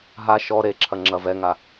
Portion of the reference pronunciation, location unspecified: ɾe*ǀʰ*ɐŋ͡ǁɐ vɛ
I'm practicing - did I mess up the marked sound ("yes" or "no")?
yes